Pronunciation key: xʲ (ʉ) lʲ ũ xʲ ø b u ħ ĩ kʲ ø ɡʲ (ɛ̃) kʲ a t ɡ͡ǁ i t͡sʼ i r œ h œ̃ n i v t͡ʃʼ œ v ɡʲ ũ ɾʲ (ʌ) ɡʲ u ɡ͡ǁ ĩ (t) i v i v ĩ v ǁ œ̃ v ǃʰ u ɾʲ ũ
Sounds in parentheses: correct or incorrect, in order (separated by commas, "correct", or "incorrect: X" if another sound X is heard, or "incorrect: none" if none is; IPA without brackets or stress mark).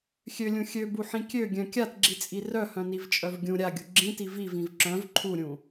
incorrect: ø, incorrect: œ̃, incorrect: a, correct